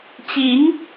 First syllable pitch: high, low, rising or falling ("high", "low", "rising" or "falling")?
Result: rising